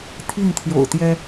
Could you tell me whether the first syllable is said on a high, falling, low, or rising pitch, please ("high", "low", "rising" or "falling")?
falling